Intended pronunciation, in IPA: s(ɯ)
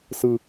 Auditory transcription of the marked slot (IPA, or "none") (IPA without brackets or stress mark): ɯ